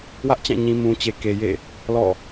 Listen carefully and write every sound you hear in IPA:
w ä˦ ʔ t͡ɕ ã˦˨ ɲ ĩ˨ m ũ˨ t͡ɕ e˨ k e˨ j ḛ˦˨ | l ɔ̰˦˨

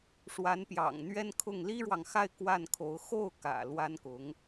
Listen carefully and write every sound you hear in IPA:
ʂ w a˧˥ n p j ɑ̰˨˩ ŋ n̪ ɥ ɛ˥ n kʰ ʊ˥˩ ŋ l i˥ ɻ w ɑ˨ ŋ x a˥˧ ɪ̯ k w a˥˩ n kʰ o˧˥ ʊ̯ x o˥˩ ʊ̯ k ä̰˨˩ l w a˥ n k ʊ˧˥ ŋ

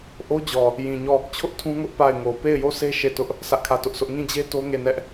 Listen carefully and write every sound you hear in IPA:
ʔ o˦ d͡ʑ ɔ˨ | j ĩ˨ ɲ ɔ˦˨ | t͡ɕʰ ʊ˦ ʔ tʰ ũ˦ ŋ ʊ˦ ʔ p a˦˨ ɪ̯ ŋ o˨ p e˦˨ ɪ̯ j o˦˨ s e˦ ʃ e˦˨ t ʊ˦ ʔ | s ä˦ ʔ kʰ ä˦˨ t ʊ˦ ʔ s ʊ˦ ʔ ŋ ĩ˦˨ d͡ʑ e˦ t o˦ ŋ e˦˨ n ɛ˦ ʔ

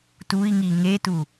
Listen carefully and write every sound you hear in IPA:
t u i̯ ŋ i ŋ e t u

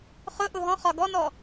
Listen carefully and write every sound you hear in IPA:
χ ʊ ʔ ʊ ɦ ɔ̃ χ ɒ ɡ ɔ n ɔ

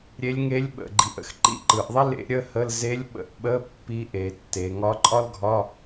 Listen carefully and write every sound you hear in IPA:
ɾʲ e˧˥ lʲ ŋ e˧˥ lʲ ɓ ə̰˨˩ ɡ͡ǃ i˨˩ ʔ ə̰˨˩ x ǃ ḭ˥˨ ǃ ɯ˩˧ ʔ ðˤ i˥ l ḛ˧˥ ɾʲ ə˧˥˧ h ə˧˥˧ l z e˧˥ lʲ ɓ ə̰˧˥˧ ʔ ɓ ə˧˥˧ pː i˧˥ ʔ e˩˧ tː e˩˧ ŋ ɒ˧˥ ǃʼ ɒ˥ l ɡʱ ɒ˧˥˧

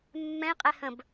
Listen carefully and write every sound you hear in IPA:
mː ɛ̃ i̯ qʼ ɛ h ə̃ b

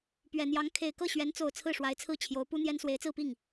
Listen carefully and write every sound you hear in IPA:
p ɥ ɛ˨˩ n̪ j ɑ˧˥ ŋ kʰ e˨˩ ɪ̯ k ɤ˥˩ ɕ ɥ ɛ˧˥ n t͡s o˨˩ ʊ̯ t͡sʰ ɹ̩˥˩ ʂ w a˧˥ ɪ̯ t͡sʰ ɹ̩˥˩ t͡ɕʰ j o˧˥ ʊ̯ p u˥ n̪ j ɛ˥ n s w e˧˥ ɪ̯ t͡s ɹ̩˥˧ p i˥˩ ŋ

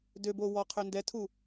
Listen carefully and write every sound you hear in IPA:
d ø b o w ɔ qʰ ø n d ɛ tʰ u

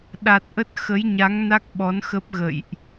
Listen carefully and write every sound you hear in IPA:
ɗ a˨˩ t̚ ʔ ə˦˥ t̚ x ə˨˦ j ɲ a˨˦ ŋ n a˦˥ k̚ ɓ ɔ˨˦ n x ə˦˥ p̚ ɣ ə̰˧˨ j ʔ

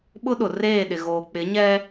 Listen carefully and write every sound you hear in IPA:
ɓ ʊ˦ ɗ ʊ˨ r eː˦˨ ɗ ɪ˨ ɣ oː˨ k͡p ɪ˨˦ ɲ ɛ˦

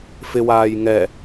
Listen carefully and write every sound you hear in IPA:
f ɪ w aː j ŋ ɛ

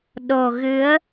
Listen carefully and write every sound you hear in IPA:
ɗ o˨˩ ɣ ɨ˨˦ ə̯

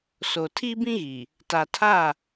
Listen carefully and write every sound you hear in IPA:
s o˨ tʰ i˦ b ĩ˦ ɣ i˨ | t a˨ tʰ a˦˨

